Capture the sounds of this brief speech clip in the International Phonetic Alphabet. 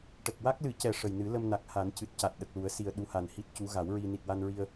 ʈə˨˩k̚wa˦˥k̚lɨ˨˩˦cɛ˨˩ ʂə˨˩jnɨ˨˩˦ lə˧mna˨˩k̚ha˨˩˦n cɨ˨˩t̚ca˨˩t̚ ɗə˨˩k̚lu˨˩˦ə̯si˨˩ə̯ ɗu˧˥ha˨˩nhi˦˥t̚cu˧˥ ɣa˨˩˦wɹi˧ ni˨˩t̚wa˧nɹi˧ə̯

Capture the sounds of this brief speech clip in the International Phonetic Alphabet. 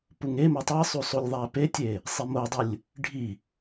puŋeme tˤisˤu sˤulʲðˤæpetʲe | sˤimodˤulʲ | ɖʱi

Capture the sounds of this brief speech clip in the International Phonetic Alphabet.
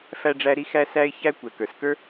fæ˥ɖ͡ʐæ˥ɾi˥ xæ˥sæ˥ɪ̯ çæ˥ kʷɛ˩kə˞˩s kə˞˥

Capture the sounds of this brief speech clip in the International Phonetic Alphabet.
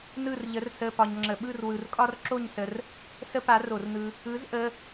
nɯ˥˧rʎə˧˥r sə˧˥˧ pɒ˧ɲŋ͡ǁə˧˩˧ɓɯ˥˧r wɯ˧rkʼɒ˥rǁo˥˧ɲsə˧r | sə˥pa˧˥ro˧˩˧rnɯ˧ | ɯ˧˥z ʔə˧˥˧

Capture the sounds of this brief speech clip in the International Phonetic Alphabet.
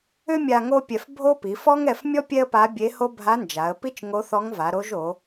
ʏ˥mʲa˧ ŋo˥pʲɛ˧f bʱo˥ pi˩˧fɔ˥ŋɛ˧fmʲɔ˥ pʲɛ˥ə̯pa˧˥bʲe˧˥ho˥ bʱa˧˥nd͡ʒa˩˧ə̯pi˥t͡ʃ ŋo˧˥θɔ˧˥ŋva˩˧ɾo˧˥ʒ o˩˧

